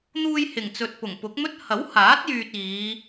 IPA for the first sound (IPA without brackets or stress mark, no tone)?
n̪